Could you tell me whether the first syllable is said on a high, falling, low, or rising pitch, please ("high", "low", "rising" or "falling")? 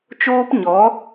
high